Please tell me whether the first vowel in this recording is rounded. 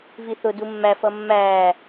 no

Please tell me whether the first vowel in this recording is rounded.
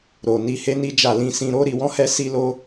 yes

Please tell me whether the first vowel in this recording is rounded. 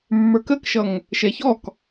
no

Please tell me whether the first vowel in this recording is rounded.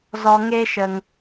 yes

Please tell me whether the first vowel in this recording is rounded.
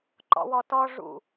yes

